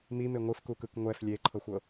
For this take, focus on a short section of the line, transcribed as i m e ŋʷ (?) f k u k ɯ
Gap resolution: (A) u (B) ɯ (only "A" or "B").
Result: B